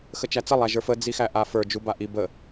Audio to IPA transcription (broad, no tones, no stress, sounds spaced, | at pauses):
x ə t͡ʃ æ t͡s ə lˠ æ ʒ ə˞ f ə d͡z i x æ ʔ a f ə˞ d͡ʒ u b a ʔ i b ə